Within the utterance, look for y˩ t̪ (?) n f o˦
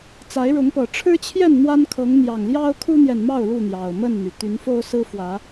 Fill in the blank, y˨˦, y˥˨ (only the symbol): y˨˦